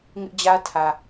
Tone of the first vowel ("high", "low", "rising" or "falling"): high